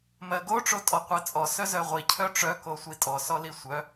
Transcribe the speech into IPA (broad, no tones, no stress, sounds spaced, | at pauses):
m ɜ ɡ o ʈ͡ʂ o tʼ ɔ qʷ ɜ t͡sʼ ɔ s œ z œ ʁʷ i cʰ œ ʈ͡ʂ œ k o sʷ i tʼ ɔ s ɔ l i sʷ œ